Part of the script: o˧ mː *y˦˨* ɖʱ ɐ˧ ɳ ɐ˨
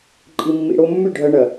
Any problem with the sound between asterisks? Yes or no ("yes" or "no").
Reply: no